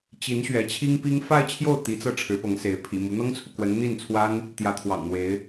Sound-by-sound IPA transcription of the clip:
t͡ɕi˧˥n ɕɥɛ˧˥t͡ɕʰi˥ŋpi˥ŋ fa˥˧ɪ̯t͡ɕʰjo˥˩ʊ̯ t̪i˧˥t͡sɤ˥˩ ʈ͡ʂʰɻ̩˧˥pɤ˧˥ŋse˧˥ɪ̯ pʰḭ˨˩mu˧˥ n̪ɤ˥ŋt͡sʰu˨kwə˧˥n n̪i˥˩nt͡sʰwa˥n | t̪jä˧˥t̪ʰwɑ̰˨˩ŋn̪we˧˥ɪ̯

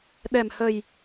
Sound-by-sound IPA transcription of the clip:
ɗɛ˨˩mhə˨˩j

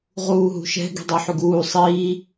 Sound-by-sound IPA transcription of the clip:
ʁuːɦṳʃɛ̤ ɡi̤dˤuħyɡuː sˤiː

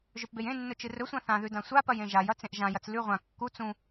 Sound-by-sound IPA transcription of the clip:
ʒɵpbejẽnːɵ t͡ʃɨrɵsʷã θãðʉ dãsʷapɐj ẽʒajɐ t͡sẽʔʒãjɐt͡s lʉ ʁʷã kːu t͡sũ

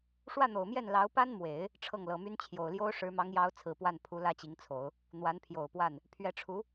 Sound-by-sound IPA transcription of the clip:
ʂwä˥˩n̪o˨˩ʊ̯mjɛ˥˩n lɑ˧˥ʊ̯pa˥nmwe˨˩˦ɪ̯ | ʈ͡ʂʰɤ˥˩ŋlɤ˨˩my˥n t͡ɕʰjo˨˩ʊ̯ljo˥ʊ̯ ʂɻ̩˧˥mɑ˧˥ŋjɑ˧˥ʊ̯ t͡sʰɹ̩˨˩pwa˥˩npʰu˧˥ lä˥t͡ɕi˧˥ŋt͡sʰo˨˩˦ʊ̯ | n̪wa˧˥npʰjo˨˩ʊ̯pwa˥˩n | pʰɥɛ˧˥ʈ͡ʂʰu˧˥

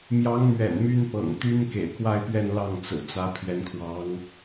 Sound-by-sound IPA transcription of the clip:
mjɑ˧˥ŋmɥɛ̰˨˩n my˥n pɤ̰˨˩ŋ t̪y˥nkḛ˨˩ɪ̯kwa˥˧ɪ̯pɥɛ˥˧n lɑ˥˩ŋt͡sɹ̩˨˩t͡sä˧˥ pʰɥɛ˧˥nkʰwɑ˧˥ŋ

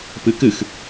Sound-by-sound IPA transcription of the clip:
pɨkɨx

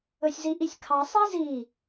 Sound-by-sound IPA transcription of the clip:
ɵsʲziʔisʲkʰɑ sˤizi

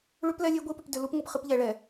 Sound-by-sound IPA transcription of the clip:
ɭʉ˦plɛ˦lʲe˦ ɡʷi˦pʏ˨p dʏ˨lu˦pŋʷɨ˨p χɨ˦p ʎɛ˨ɭɛ˨

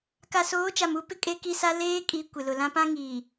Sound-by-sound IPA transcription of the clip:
ka˨soː˨˦t͡ʃa˨m u˦ pɪ˦kʼe˦ki˦sa˦ leː˦kʼi˨˦ kʷɪ˨lʊ˨lã˦ pã˦ŋiː˨

